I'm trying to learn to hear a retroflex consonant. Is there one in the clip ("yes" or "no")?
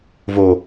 no